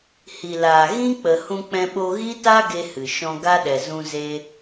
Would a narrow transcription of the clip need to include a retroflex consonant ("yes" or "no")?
no